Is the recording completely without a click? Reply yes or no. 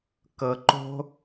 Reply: no